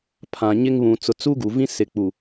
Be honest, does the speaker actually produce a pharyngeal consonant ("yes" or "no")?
no